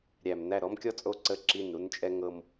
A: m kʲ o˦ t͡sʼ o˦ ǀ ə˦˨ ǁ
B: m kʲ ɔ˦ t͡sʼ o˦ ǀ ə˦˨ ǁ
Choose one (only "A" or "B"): B